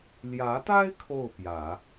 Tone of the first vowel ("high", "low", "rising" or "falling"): rising